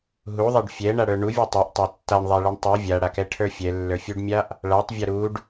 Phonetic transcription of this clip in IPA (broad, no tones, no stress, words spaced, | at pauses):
ɦuðˤɛɖ fʲɛɳaɽə˞ ɳuvʲu tˤɛʔtˤa tːaɳðˤaɭɛɳ tˤu vʲaɽakɛʈʰə˞ fʲɛlːə˞fʲuɖmʲaʔ | ɭatˤvʲa ɾuɖ